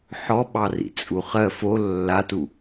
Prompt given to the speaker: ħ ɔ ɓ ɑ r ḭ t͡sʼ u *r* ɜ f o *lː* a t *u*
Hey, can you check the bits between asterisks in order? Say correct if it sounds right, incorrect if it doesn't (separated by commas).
incorrect, correct, correct